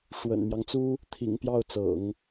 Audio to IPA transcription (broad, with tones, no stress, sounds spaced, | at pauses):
ʂ w ə̰˨˩ n m j ɑ˦ ŋ t͡s u˥ | t̪ʰ ḭ˨˩ ŋ p j ɑ˥˩ ʊ̯ t͡s ɤ̰˨˩˦ ŋ